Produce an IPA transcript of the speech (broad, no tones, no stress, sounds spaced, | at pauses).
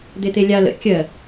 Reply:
d̪ e t̪ e lʲ a l ə̰ kʲ ɜ